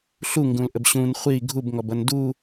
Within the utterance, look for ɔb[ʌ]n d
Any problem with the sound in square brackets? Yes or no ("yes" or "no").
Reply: no